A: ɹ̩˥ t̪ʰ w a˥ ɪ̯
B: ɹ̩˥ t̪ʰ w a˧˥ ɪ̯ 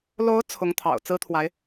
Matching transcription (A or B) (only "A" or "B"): B